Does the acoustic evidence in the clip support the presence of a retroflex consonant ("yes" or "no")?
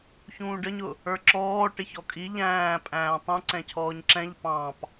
yes